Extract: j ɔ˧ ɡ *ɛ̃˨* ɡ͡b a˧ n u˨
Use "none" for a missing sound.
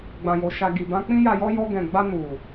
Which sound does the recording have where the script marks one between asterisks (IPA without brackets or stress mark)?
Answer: ɛ̃˨